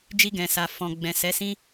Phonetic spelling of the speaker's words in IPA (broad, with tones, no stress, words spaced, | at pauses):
d͡ʒi˧ɡɛ̃˨sa˨ fɔ̃˨ ɡ͡bɛ̃˨sɛ˨˦sĩ˦